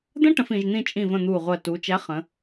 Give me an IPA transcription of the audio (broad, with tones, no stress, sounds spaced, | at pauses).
d̪ ə̃˦˥ ʈ ə̃˩˧ f ĩ˩˧ ʒ n̪ ĩ˥˨ t͡ʃʼ ĩ˧˩ v ə̃˧˩ n̪ uː˧˩ ʁʷ ɜ˧˩ t uː˩˧ t͡ʃ æ˨˥ χ ə̃˩˧